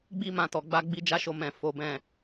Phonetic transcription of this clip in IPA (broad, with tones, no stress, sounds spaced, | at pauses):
ɡ͡b i˦ m ã˧ t ɔ˨ ɡ͡b a˧ ɡ͡b i˧ d͡ʒ a˦ ʃ o˧ m ɛ̃˨ f o˨˦ b ɛ̃˦˨